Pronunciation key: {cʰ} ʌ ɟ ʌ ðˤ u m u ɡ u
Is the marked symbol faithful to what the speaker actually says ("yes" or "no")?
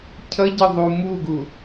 yes